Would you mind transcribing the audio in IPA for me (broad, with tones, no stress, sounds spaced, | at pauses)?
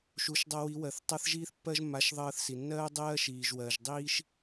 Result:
ʃ u˧˥ ʃ dˤ a˥ w i˧˥ w ɜ˨ θ tˤ a˥ θ ʒ iː˥ θ pː ɜ˥ ʒ mː a˧˥ ʃ ðˤ ɜː˥ θ s i˨ nː ɜː˥ dˤ ɜː˥ ʃ iː˨ ʒ w ɜː˨ ʒ dˤ iː˥ ʃ